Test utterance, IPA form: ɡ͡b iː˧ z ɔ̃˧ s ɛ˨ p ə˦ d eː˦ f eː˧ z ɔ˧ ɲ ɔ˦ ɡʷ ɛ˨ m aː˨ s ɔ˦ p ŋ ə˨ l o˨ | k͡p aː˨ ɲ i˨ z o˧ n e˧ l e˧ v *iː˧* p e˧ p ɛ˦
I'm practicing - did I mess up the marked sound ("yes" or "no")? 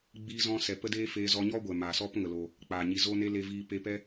no